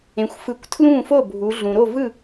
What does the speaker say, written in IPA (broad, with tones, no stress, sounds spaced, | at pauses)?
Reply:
ẽ˩ xʷ f ɯ˩˧ kʷ tʰ l ũː˥˩ f o˥˩ bʱ u˩˧ ɮ ũ˩ ɾ o˥˩ v ɯ˥˩